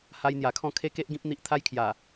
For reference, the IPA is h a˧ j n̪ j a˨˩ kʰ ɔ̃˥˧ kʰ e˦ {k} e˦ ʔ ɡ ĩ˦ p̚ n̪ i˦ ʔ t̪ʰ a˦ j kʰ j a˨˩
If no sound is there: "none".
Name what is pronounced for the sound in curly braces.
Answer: k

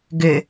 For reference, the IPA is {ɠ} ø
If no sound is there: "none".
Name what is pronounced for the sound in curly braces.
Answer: ɡ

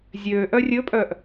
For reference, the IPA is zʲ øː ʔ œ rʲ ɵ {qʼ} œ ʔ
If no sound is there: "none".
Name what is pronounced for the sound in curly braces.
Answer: pʼ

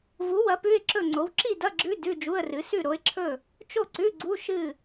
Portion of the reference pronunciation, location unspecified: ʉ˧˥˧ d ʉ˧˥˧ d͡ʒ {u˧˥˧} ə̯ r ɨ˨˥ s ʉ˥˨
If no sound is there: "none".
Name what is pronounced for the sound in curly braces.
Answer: u˧˥˧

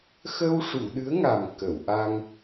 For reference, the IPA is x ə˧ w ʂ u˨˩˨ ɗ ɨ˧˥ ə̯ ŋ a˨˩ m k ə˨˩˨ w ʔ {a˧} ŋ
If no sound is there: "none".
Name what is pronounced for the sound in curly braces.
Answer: a˧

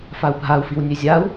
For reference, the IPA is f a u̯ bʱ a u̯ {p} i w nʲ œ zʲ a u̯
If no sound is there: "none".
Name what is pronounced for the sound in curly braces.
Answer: f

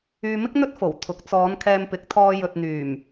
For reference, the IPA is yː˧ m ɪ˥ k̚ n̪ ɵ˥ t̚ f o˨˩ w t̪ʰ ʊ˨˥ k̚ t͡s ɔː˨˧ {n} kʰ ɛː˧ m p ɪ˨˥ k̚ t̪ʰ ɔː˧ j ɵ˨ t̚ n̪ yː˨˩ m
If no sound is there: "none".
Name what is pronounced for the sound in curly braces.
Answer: n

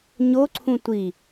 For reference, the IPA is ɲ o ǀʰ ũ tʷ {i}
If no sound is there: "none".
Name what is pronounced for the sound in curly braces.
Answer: i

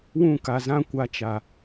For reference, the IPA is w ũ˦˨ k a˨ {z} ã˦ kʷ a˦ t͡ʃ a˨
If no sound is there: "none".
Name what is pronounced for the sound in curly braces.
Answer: z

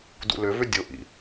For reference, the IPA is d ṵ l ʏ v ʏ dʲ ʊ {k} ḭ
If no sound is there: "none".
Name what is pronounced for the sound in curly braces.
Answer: ʔ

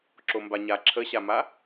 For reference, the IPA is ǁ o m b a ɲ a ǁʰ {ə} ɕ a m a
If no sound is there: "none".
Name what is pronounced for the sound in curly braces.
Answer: ə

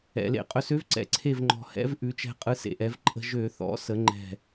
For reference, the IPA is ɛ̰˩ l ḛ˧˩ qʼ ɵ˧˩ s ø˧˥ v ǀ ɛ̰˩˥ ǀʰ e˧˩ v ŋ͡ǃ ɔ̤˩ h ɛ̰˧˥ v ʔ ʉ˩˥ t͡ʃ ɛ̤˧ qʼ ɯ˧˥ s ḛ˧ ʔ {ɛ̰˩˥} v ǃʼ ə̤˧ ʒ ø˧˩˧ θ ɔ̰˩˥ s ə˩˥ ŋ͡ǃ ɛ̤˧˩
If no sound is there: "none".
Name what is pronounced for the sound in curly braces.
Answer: ɛ˩˥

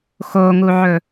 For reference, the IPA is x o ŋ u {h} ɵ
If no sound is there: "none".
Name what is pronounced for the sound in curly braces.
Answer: ʕ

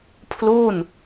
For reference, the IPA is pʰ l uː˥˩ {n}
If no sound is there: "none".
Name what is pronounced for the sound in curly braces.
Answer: n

